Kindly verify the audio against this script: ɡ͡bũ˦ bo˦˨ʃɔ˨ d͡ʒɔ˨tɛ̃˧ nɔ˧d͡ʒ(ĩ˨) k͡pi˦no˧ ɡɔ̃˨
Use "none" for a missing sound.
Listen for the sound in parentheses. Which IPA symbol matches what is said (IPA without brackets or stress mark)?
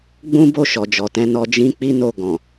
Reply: ĩ˦